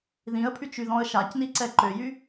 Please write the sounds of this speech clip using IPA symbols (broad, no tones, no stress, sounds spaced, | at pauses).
ð ĩ ə̯ pʰ y t͡ʃ y ð ɔ̃ ə̯ ʃ a c n i ǀ ɛ ǃ ø j y